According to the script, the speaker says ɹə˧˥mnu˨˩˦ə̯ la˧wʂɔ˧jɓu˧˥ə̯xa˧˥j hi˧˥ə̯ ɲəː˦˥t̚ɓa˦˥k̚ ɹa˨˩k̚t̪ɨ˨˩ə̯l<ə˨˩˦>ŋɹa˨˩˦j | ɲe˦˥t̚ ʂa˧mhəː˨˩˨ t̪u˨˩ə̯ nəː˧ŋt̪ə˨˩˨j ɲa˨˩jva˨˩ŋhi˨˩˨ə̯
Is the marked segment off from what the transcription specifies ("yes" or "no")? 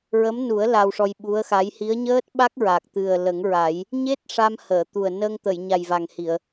no